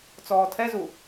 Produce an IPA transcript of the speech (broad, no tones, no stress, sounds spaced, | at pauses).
t͡s ɔː tʰ ɛ z u